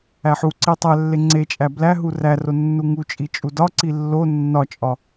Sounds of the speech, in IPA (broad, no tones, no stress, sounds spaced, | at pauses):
æ ħ u ǀ i tˤ æ lː e ŋ͡ǀ e t͡ʃʼ æ b l æ ɦ u r æ r o nː u ŋ u t͡ʃʼ i t͡ʃʼ u d ɒ ǀ i lː o nː ɒ t͡ʃʼ ɒ